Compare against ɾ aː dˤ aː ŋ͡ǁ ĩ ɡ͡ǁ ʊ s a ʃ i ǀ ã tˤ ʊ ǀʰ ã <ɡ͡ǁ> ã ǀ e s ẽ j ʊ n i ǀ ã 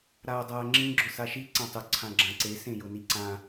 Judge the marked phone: correct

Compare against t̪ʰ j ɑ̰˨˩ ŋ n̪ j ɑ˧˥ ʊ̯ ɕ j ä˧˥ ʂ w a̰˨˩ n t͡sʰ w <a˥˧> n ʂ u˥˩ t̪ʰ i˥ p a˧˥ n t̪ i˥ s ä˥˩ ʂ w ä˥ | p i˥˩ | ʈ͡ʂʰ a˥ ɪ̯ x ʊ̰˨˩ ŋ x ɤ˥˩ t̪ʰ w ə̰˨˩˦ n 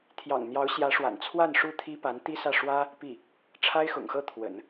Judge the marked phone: correct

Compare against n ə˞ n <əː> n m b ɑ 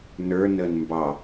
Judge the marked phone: correct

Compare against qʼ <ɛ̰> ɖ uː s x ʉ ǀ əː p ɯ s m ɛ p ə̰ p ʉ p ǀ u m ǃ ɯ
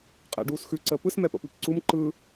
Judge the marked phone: correct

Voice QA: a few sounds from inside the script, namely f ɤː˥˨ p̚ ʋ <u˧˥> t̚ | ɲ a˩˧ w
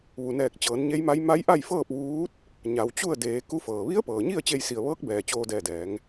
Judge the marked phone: incorrect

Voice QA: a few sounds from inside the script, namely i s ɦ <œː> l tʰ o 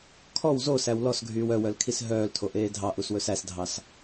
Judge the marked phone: correct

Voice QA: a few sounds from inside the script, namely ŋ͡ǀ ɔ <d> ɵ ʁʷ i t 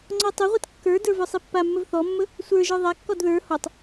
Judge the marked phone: incorrect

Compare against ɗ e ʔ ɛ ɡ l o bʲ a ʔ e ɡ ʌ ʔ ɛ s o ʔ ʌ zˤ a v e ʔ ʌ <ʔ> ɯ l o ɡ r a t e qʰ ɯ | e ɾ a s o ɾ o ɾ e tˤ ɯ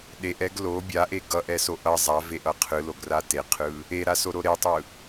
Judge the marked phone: incorrect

